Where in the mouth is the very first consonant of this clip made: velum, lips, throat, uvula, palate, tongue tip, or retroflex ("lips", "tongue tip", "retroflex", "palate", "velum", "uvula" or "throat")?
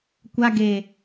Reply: velum